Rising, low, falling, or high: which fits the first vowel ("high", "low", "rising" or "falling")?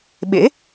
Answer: rising